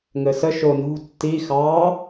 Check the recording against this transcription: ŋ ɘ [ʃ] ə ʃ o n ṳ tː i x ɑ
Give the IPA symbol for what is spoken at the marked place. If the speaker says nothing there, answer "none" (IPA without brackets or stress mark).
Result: s